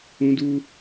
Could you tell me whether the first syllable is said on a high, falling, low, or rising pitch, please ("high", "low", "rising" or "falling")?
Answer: high